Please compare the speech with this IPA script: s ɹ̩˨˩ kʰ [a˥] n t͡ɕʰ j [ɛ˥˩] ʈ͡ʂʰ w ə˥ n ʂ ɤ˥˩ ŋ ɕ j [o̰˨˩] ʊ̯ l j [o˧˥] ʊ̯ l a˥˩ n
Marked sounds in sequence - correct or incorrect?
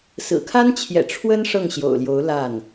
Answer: correct, incorrect: ɛ̰˨˩, correct, correct

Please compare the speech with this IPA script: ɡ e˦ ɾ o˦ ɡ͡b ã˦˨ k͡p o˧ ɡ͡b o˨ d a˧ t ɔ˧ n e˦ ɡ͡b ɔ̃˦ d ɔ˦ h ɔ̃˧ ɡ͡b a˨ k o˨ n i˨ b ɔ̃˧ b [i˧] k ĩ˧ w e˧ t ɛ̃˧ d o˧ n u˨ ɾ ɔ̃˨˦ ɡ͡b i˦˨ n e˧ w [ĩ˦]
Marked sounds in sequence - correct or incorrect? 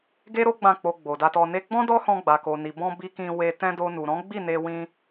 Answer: correct, incorrect: ĩ˧

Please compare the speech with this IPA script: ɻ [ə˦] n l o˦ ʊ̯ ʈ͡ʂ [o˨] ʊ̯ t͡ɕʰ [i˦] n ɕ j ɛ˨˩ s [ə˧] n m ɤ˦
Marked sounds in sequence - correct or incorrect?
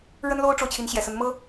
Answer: correct, correct, incorrect: i˨˦, incorrect: ə˨˦

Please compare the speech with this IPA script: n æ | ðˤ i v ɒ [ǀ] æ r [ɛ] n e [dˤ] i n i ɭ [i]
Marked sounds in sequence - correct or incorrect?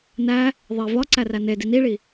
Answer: correct, incorrect: æ, incorrect: d, correct

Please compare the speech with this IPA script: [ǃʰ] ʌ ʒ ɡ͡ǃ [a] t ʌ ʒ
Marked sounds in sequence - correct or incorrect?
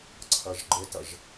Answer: incorrect: ǀʰ, incorrect: ə

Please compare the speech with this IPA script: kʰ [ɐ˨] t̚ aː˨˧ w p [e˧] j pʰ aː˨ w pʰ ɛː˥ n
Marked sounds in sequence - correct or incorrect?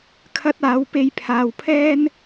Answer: incorrect: ɐ˧, correct

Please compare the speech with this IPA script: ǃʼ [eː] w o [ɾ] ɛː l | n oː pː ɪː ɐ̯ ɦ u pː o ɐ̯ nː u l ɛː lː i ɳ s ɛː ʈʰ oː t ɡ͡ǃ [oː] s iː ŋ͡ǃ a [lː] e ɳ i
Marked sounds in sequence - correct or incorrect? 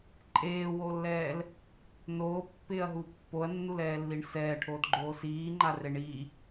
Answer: correct, incorrect: lː, correct, incorrect: r

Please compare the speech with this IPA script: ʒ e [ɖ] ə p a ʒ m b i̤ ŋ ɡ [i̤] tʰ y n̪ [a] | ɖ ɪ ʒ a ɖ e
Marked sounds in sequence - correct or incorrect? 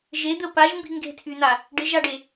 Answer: incorrect: d̪, incorrect: e̤, correct

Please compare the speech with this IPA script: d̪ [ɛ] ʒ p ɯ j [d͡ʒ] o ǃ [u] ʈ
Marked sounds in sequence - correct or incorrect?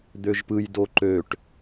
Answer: incorrect: ø, incorrect: d, incorrect: ø

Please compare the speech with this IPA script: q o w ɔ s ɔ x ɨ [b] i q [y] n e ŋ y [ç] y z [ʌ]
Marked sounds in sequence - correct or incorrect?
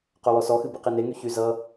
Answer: correct, incorrect: i, correct, correct

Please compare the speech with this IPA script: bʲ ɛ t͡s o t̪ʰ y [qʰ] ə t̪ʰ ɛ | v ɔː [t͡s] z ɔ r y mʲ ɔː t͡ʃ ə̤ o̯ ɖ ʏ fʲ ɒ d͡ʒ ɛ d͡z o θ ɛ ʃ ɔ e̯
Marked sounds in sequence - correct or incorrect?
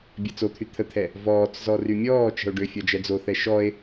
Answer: incorrect: t̪ʰ, correct

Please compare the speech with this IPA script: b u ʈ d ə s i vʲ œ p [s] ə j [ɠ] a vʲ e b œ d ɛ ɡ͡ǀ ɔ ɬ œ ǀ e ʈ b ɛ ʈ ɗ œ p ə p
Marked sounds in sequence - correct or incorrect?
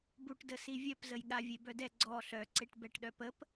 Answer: incorrect: z, correct

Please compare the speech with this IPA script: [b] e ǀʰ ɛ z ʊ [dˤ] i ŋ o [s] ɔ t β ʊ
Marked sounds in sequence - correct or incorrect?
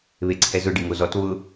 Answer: incorrect: β, incorrect: ɖ, incorrect: z

